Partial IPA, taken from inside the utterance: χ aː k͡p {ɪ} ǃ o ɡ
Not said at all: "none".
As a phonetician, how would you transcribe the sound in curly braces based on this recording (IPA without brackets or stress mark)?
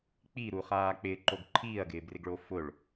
ɪː